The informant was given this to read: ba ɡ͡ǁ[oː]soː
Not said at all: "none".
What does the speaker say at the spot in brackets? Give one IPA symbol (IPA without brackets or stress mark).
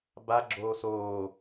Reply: oː